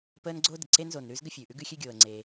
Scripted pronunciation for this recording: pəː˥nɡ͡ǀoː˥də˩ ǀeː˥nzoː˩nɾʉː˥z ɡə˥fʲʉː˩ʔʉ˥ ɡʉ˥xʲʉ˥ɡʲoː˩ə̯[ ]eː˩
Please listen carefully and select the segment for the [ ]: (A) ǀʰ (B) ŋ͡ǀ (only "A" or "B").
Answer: B